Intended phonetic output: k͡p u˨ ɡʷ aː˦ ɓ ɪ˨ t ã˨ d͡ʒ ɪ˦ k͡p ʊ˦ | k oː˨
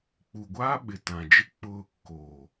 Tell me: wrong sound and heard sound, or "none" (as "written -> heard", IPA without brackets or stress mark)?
none